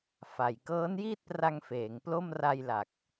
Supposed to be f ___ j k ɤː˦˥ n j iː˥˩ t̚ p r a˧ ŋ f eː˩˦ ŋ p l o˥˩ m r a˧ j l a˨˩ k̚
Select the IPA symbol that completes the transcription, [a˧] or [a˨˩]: a˨˩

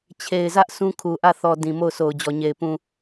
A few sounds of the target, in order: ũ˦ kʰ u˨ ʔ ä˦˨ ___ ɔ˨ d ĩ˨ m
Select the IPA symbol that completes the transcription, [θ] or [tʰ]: θ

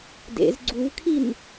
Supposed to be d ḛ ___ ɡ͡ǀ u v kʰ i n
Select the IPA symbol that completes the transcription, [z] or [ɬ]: z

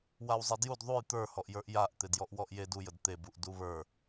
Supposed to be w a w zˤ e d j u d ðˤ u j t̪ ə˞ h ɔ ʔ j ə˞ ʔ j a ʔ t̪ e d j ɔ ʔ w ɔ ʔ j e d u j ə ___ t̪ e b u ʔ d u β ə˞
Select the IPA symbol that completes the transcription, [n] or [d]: d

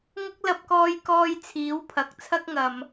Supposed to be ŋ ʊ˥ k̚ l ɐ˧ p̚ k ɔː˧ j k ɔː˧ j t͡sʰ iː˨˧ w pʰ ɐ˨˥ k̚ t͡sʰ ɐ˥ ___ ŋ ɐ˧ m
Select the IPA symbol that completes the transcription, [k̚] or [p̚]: k̚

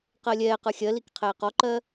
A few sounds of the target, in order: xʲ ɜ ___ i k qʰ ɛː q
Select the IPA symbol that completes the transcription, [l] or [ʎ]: l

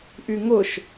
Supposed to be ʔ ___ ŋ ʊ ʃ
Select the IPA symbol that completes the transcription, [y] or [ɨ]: y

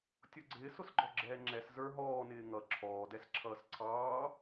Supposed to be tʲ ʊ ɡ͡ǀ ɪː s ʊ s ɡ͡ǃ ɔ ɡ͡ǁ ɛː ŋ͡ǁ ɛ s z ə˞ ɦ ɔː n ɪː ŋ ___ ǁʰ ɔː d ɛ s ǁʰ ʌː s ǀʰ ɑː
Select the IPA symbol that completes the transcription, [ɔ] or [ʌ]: ʌ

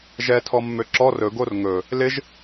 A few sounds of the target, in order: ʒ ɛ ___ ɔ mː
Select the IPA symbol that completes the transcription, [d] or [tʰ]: tʰ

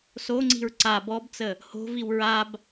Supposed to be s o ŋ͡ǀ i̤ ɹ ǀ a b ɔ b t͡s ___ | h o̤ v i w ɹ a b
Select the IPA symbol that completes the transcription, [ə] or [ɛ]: ə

